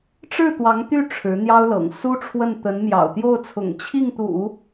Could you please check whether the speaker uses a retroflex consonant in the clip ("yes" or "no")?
yes